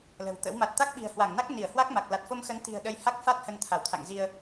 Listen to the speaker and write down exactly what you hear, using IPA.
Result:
l ə̤˨˩ w t̪ ə̰˧˥ w m a˨˩ t̚ t̪ a˦˥ k̚ ɓ i̤˨˩ ə̯ h w a˧˩ ŋ n a˦˥ k̚ n i˧˩ ə̯ h w a˦˥ k̚ m a˨˩ k̚ l a˨˩ t̚ f o˧ m x ə˨˦ n t̪ i̤˨˩ ə̯ ɗ ə˧ j h a˦˥ k̚ f a˦˥ t̚ h ə˧ n t̪ʰ a˧˩ w t̪ʰ a̰˧˨ ŋ z i˧ ə̯

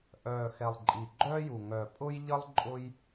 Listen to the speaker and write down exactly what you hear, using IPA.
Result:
ʔ œː˨˩ x ɛ˨˩ lˠ ǃʼ i˨˩ ɡ͡ǃ œː˥ j u˨˩ ŋ œ˨˩ pʼ ʊ˥ j ʎ ə˥ lˠ ǃʼ ʊ˥ j

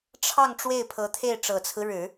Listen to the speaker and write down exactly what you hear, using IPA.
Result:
ʈ͡ʂʰ ɑ˥˧ ŋ ʈ͡ʂ w e˥˩ ɪ̯ pʰ ɤ˧˥ t̪ʰ e˥˩ ɪ̯ ʈ͡ʂ ɤ˨˩ t͡sʰ ɹ̩˦ ɻ ɻ̩˨˩˦

